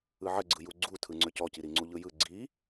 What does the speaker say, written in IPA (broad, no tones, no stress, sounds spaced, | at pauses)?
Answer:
ɯ ʕ ə ɡ͡ǀ ɯ j u ɡ͡ǀ u tʰ ɯ ŋ͡ǀ ø c ɔ c i ɾ i ŋ͡ǀ u ʎ ɯ j ɯ ɡ͡ǀ i